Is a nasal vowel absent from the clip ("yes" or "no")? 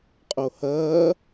yes